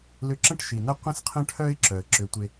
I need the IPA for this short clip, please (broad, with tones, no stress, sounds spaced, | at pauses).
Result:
l ʏ˧ ǁ ə̃˥ ʈ ʃ i˩ n ɐ˥ qʷ ə̃˥ s qʰ ə̃˥ ʈʰ œ˥ ɪ̯ ǁ œ˩ ə̯ ǁ ʏ˧ tʷ e˧